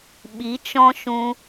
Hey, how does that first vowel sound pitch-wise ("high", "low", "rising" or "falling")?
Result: rising